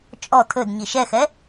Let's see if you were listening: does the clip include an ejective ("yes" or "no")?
yes